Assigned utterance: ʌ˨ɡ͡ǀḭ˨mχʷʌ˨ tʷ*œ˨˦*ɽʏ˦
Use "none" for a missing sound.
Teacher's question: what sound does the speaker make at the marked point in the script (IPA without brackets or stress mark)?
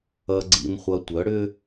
œ˨˦